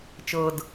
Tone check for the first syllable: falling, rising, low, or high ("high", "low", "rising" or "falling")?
low